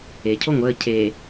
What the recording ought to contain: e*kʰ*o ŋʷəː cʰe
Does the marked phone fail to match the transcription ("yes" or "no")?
yes